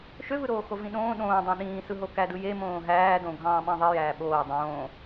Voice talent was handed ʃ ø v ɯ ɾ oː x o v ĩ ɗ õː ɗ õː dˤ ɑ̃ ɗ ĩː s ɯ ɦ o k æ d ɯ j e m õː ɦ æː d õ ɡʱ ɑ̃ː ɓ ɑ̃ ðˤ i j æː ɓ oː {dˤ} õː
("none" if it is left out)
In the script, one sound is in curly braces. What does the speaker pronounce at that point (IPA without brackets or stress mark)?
dˤ